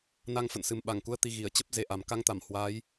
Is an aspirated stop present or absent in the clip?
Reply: absent